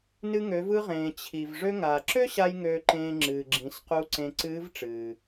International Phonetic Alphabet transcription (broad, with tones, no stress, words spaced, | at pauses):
nɨ˧ŋø˩˧vɯ˧ʁẽː˩ t͡ɕʰi˩v ʐø˧ŋaː˩ǁø˥ɕa˧j ŋøː˧ǃẽː˧ ŋ͡ǁɨː˩ɡ͡ǁĩ˩˧squ˧˥ǀẽ˧ ǀɨː˧˥vʈ͡ʂɨː˩